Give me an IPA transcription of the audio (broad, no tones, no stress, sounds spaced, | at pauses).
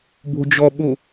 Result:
b o̤ d͡ʒ ɔ ɓ o